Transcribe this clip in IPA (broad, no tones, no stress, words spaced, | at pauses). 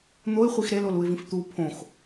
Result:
n̪oɪ̯χʷix ɾeloluɪ̯vĩf t̪u pʰõx